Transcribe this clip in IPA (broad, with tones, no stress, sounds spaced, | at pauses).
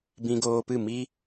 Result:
b ĩ˧ ɡ oː˧ p ɨ˦˨ m i˦